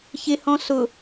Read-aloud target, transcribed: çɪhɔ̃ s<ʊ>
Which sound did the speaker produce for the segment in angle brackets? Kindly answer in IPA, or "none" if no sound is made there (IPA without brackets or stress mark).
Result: ʊ